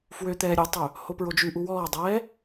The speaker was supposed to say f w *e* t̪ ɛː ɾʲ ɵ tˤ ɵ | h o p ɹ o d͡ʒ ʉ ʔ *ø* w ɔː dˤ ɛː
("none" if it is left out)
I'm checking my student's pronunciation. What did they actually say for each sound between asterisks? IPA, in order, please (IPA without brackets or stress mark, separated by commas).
ø, u